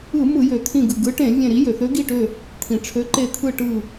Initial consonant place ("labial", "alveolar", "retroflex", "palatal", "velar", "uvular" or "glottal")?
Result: labial